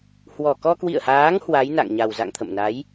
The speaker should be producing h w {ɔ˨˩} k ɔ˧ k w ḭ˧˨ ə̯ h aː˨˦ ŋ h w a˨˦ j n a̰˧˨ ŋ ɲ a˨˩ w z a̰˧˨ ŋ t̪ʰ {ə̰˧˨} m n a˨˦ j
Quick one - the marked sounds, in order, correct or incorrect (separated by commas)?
correct, correct